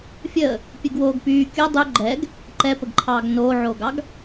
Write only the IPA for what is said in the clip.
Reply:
fʲ əː | pʲ ɨ ɡ w oː ɡ p yː kʲ ɤ dˤ y ɡ͡ǃ ɛ ɡ | ǃ ɛ p ə ɡ ǃʰ ɑː ɡ n oː ʕ oː ɡ ɑ ɡ

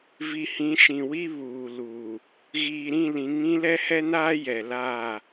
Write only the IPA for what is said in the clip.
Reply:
v i˨ h ĩ˨˦ ʃ ĩ˨ w i˦ β uː˨ l uː˨ | ɣ iː˨ ɾ ĩ˦˨ l ĩ˨˦ ŋ ĩ˦ l ɛ˦ h ɛ˦ n aː˦ j ɛ˨ l aː˦˨

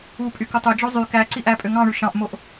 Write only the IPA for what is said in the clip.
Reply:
u pʼ y k o tˤ ø d͡ʒ o zˤ y k æ ǀ i ʔ æ pʼ ø ŋ ɑ̃ ɳ y ʃ ɑ̃ ʔ m o ʔ

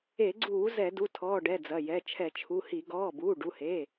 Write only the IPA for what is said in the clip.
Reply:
e˧˩˧ ɡ͡ǀ uː˧˩˧ z ɛ˧˩˧ d u˩˧˩ tʰ ɔː˩˧˩ ɖ ɛ˩˧˩ d͡z ɐ˩˧˩ j ɛ˩˧˩ t͡ʃʰ ɛ˧˩˧ t͡ʃʰ u˩˧˩ h i˧˩˧ ɡ ɔː˩˧˩ b uː˩˧˩ ɖ u˩˧˩ h e˩˧˩

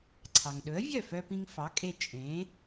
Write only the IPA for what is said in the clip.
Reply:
ǀʰ ɑ˩ ŋ ɗ ɵ˩˥ ə̯ vʲ œ˥˩ f œ˧ p ĩ˧ ŋ f ɑ˩˥ kʼ e˧ t͡ʃʼ ẽ˩˥

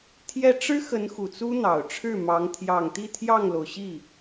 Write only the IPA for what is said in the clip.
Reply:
t̪ʰ j ɛ˥˩ ʈ͡ʂ ɻ̩˥ x ə˧˥ n x u˨˩ t͡s u˥ n̪ ɑ˨˩ ʊ̯ ʈ͡ʂʰ ɻ̩˥˩ m ɑ˧˥ ŋ t̪ʰ j ɑ˨˩ ŋ t̪ i˥˧ t̪ʰ j ɑ˥˩ ŋ l o˩ ʊ̯ ɕ i˥˩

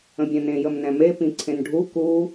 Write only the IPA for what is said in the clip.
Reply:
ə̃ bʲ ɛ̃ n ẽ j ə m n ɛ̃ m e p ĩ ǀʰ ẽ n ɖʱ u k u

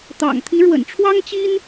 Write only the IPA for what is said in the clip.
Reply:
t̪ ɑ̰˨˩ ŋ t̪ʰ i˧˥ ɻ w ə̰˨˩ n ʈ͡ʂʰ w ɑ˥ ŋ t͡ɕ i˥ n

